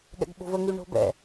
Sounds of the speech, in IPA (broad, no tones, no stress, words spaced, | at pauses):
ɠɛ̰ɡɓo̤və ŋyɳo̤bɛ̰